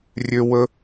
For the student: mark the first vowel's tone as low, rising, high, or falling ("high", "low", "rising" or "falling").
high